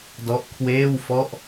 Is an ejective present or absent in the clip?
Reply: absent